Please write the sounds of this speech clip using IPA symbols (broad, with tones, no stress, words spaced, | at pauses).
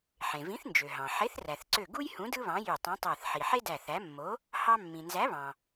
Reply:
ħẽ˩vĩ˨˥θnd͡ʒø˩ɦɑ̃˩ ħe˨˥θræ˩θǀø˧˩ ɡu˥jhũ˨˥ dɯ˥βɑ̃˨˥jy˧˩ tˤũ˨˥tˤæ˧˩θ ħi˩ħe˥ dæ˧˩θæ˨˥ mːo˨˥ | hɑ˥ mːĩ˩nzæ˨˥βɑ̃˩